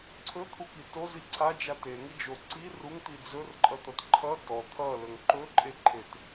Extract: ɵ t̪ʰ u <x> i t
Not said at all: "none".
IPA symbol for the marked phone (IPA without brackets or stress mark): k